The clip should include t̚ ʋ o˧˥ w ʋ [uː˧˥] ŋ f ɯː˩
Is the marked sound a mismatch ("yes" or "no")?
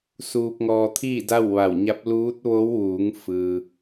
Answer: yes